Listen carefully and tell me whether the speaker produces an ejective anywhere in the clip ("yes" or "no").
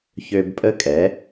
yes